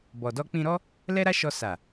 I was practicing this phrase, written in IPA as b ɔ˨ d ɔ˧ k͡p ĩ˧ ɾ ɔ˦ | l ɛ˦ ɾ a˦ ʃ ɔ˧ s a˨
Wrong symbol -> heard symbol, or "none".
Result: none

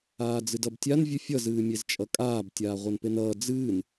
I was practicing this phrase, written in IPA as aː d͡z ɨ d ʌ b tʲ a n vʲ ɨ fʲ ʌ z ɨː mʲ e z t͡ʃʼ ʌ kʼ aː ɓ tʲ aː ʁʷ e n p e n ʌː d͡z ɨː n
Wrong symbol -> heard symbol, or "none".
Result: ɓ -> b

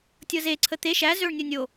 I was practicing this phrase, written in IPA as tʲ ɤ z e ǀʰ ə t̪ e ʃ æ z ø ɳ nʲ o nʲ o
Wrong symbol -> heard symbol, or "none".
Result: none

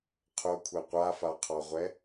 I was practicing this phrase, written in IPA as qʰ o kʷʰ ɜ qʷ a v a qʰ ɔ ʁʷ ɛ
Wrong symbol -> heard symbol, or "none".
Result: v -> f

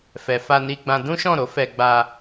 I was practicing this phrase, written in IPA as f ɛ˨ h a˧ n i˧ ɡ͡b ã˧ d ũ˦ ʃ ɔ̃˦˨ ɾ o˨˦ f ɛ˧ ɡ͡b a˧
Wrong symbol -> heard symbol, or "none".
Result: h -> f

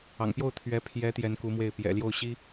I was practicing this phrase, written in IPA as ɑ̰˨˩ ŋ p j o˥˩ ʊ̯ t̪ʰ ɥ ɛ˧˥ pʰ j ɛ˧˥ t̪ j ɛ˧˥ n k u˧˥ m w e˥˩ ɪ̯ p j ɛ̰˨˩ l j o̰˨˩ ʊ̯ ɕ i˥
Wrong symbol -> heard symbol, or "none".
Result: o̰˨˩ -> o˥˩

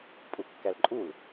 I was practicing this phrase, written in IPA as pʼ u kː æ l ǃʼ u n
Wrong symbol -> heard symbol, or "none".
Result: n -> l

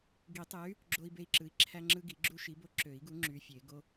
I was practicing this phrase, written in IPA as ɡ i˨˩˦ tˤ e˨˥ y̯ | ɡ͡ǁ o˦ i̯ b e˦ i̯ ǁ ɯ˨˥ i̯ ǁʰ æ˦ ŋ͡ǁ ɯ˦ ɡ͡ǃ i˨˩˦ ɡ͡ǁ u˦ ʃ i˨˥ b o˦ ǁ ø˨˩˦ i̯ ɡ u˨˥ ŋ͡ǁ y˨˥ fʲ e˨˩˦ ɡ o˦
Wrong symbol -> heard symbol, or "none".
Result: ɡ͡ǃ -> ɡ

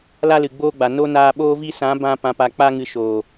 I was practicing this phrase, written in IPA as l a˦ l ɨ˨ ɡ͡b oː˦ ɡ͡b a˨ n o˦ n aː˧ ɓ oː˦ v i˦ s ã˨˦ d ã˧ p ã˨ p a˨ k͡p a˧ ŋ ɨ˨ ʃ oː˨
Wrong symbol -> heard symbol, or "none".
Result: d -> b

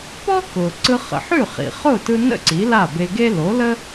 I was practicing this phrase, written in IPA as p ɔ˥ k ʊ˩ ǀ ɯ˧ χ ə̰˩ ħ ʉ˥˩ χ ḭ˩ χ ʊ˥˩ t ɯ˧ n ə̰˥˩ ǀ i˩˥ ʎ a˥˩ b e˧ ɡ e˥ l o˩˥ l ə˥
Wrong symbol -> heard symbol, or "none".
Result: ʎ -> l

